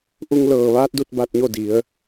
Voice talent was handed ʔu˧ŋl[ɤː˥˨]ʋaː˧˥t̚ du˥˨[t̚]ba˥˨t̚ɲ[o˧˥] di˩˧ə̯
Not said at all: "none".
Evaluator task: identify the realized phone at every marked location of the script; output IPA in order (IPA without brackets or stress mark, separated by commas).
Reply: ɤː˧˩, t̚, o˥˨